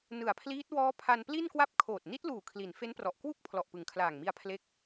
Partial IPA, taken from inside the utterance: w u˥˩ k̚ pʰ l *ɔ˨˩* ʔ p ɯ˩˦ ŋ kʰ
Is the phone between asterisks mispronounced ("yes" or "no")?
no